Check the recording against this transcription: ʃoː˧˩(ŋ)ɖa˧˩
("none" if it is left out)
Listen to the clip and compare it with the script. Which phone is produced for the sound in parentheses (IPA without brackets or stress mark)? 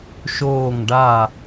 ŋ